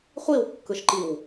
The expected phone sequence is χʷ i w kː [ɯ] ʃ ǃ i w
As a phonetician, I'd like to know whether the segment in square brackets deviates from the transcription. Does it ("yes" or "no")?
no